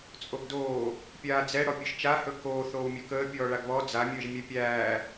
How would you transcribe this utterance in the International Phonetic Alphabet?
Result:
t͡sʼ o ɡ d oː | pʲ aː d͡z ɛ ɽ ɔ pʲ ɵ ʒ t͡ʃ a h ɵ k oː θ oː w mʲ ɵ k əː pʲ ɔː ɭ a ɡ β ɔ d͡z a mʲ əː ʒ mʲ ɛ pʲ æː

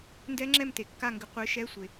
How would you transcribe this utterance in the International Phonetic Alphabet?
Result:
n d ɛ˦˥ ŋ͡ǁ ɛ˥˨ m t e˩ kː a˥˨ ŋ ɡ ɪ˨˥ qʷ ɪː˨˥ ʃ ɛ˧˥˧ sʷ e˩

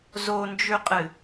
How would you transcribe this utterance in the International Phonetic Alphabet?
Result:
z o n d͡ʒ ʉ qʼ ɨ

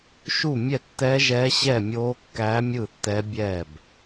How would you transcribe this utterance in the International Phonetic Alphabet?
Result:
ʃ u˥˨ mʲ ɛ˥˨ tː ɛː˦˥ ʒ ɛː˦˥ ɕ ɛ˥˨ mʲ oː˦˥ kː æː˦˥ mʲ ɯː˥˨ tː ɛː˦˥ bʲ ɛː˥˨ b

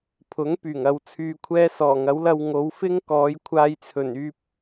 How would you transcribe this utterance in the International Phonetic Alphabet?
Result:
pʰ ʊ˨˥ ŋ p yː˨˩ ŋ ɐ˧ w t͡sʰ yː˧ kʷʰ ɛː˥ s ɔː˨˩ ŋ ɐ˨˥ w l ɐ˧ w ŋ o˨˧ w f ɪ˥ ŋ k ɔː˨˧ j kʷʰ aː˧ j t͡sʰ ɵ˨˩ n yː˧ p̚

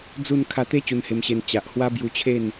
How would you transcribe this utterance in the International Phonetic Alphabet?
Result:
d͡z u˥˧ n kʰ a˧ t̪ e˦ t͡ɕ u˧ n h e˧ m ɕ e˧ n t͡ɕ a˨ ʔ h w a˦ b j u˧ t͡ɕʰ e˥˧ n

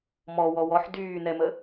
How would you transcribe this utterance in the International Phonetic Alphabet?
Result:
m ɔ w ɔ w ɔ ħ d yː n ɛ m ə

